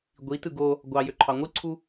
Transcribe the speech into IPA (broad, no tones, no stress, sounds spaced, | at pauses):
ɡʷ i t ɯ ɡ o | ɡʷ ɑ j ø ǃʰ ɑ ŋʷ ɯ ǀʰ u